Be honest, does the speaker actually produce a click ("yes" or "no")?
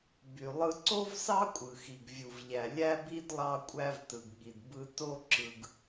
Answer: yes